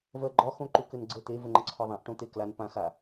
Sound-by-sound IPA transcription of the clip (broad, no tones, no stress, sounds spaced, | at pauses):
v ɜ ɡ͡ǃ ɒ x õ ǃ u k ɘ n ɡ͡ǀ ə t̪ e v ɘ ŋ͡ǃ ə ǀʰ ɔ ðˤ ã ʔ ʈ õ t̪ e k l a n p ã x a